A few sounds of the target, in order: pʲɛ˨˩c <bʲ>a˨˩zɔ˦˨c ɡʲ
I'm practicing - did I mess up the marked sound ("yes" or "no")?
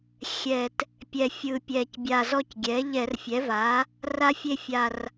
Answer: no